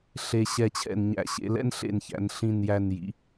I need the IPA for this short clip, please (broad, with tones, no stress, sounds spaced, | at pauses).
ɬ e˧ ɕ ɛ˧˩ t͡ɕʰ ɛ̰˧˩ n ɲ æ̰˧˩ ɕ ḛ˧ l ɛ̰˥ n ɬ ḛ˧˩ n ç æ̰˩˧ n ɬ ĩ˧˩ n j æ˧˩ n j ḭ˩˧